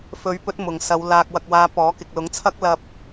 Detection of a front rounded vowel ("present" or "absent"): absent